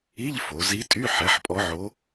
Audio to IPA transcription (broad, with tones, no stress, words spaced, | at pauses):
i˧˥˧ʎfo˩˧ zi˧˥tʼy˧˥˧ ħɛ˩˥ħpʼɔ˧˥ʕo˧˥